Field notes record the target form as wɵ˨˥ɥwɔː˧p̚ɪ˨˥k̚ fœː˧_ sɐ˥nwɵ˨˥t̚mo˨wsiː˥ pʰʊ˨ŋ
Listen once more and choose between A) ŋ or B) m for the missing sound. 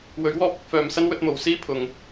B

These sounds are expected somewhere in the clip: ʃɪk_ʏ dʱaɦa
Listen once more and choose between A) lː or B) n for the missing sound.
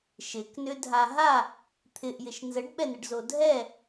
B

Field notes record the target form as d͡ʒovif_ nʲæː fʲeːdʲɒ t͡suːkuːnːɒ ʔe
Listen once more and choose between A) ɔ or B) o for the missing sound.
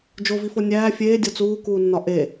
B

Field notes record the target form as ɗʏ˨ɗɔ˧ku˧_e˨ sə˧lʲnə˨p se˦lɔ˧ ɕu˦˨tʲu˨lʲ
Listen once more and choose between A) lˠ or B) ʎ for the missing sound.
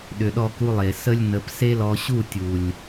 A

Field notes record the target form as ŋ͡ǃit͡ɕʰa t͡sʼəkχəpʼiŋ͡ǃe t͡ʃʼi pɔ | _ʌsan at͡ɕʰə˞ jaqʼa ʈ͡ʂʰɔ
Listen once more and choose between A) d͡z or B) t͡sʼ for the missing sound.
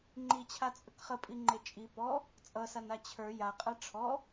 B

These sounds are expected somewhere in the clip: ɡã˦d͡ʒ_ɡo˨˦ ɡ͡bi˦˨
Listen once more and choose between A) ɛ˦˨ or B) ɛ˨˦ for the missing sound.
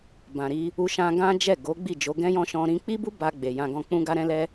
A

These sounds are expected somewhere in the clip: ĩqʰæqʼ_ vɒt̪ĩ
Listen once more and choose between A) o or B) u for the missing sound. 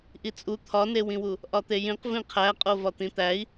A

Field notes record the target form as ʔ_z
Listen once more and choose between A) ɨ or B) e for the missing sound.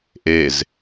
B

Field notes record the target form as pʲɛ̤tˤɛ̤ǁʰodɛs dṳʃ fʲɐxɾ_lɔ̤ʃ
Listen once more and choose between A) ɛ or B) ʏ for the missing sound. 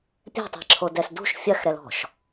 A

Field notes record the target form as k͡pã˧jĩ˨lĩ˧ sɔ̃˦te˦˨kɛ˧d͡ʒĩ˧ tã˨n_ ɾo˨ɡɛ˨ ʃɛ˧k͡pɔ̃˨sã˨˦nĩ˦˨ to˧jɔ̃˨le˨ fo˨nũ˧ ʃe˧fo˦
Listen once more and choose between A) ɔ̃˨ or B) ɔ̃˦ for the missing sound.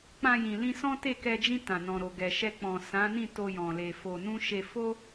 A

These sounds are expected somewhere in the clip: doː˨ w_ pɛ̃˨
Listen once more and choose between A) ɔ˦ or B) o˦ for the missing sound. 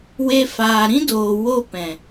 B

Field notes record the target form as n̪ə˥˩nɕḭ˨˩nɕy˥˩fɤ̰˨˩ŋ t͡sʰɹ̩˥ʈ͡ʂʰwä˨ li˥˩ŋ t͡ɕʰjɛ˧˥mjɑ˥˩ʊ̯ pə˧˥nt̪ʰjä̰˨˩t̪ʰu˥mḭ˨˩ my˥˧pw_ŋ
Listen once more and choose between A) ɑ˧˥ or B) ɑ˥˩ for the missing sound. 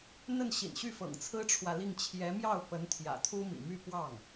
B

